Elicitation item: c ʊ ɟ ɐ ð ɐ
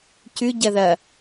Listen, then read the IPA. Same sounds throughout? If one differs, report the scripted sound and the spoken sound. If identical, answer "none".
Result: ʊ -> ʉ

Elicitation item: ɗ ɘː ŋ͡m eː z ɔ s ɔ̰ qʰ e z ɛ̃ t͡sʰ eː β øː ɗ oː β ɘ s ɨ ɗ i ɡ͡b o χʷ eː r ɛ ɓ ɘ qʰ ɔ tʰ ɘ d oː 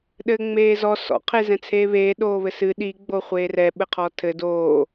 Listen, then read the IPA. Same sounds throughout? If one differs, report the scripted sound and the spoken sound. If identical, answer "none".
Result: øː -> eː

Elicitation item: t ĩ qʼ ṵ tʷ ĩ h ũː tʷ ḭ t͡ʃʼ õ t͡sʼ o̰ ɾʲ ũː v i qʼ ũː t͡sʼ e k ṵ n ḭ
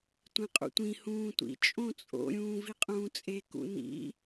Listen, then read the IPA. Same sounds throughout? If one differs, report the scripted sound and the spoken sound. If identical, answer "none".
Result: t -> tʷ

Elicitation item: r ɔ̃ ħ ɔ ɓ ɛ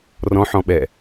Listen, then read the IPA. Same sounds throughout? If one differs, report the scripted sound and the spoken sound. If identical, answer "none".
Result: ɔ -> ɔ̃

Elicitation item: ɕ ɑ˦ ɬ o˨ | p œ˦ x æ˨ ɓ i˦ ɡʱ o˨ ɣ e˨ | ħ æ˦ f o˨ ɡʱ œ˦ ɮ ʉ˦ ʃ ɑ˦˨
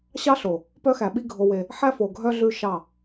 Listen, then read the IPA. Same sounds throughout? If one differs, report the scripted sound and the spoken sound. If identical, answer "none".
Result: ɣ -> w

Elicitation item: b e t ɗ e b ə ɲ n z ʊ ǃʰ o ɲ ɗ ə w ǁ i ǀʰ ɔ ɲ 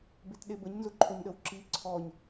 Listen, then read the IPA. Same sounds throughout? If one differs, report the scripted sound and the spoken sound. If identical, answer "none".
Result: none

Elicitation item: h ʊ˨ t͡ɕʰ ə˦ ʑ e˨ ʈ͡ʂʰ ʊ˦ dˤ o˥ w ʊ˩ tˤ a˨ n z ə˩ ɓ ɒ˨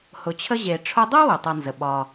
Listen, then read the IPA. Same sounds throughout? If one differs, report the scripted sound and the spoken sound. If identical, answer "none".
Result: none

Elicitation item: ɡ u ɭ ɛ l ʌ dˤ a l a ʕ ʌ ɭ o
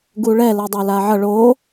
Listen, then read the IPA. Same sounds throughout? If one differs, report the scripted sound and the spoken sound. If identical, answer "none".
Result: none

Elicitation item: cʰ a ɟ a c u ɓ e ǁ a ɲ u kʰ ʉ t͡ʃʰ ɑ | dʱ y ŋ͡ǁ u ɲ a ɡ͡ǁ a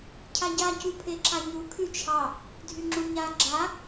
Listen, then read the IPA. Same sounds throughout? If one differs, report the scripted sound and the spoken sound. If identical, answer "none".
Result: ɓ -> pʰ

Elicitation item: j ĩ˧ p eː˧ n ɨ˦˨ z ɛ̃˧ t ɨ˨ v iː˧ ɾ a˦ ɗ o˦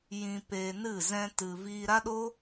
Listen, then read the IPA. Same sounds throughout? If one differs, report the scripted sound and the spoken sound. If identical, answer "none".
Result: none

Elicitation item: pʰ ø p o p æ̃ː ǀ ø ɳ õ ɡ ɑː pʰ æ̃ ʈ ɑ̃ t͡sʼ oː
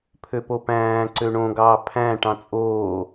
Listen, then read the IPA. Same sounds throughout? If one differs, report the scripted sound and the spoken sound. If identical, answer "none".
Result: none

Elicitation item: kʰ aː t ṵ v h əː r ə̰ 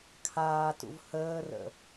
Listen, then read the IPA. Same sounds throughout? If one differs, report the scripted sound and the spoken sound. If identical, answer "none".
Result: none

